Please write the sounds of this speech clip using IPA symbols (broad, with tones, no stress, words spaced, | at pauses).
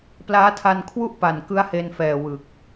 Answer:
plaː˦˥tʰa˧nkʰwu˥˩ʔ pa˨˩nkɯ˦˥a̯he˧nfɛː˨˩ wɯ˨˩k̚